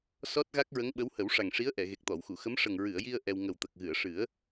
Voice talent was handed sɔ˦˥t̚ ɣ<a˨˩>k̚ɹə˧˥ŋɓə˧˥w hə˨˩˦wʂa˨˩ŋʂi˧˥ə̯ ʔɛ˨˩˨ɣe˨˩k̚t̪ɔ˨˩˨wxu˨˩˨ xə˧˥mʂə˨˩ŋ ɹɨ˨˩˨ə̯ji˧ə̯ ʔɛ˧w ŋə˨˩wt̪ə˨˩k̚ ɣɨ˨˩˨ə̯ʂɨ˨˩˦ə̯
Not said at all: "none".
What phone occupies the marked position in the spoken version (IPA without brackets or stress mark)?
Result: a˦˥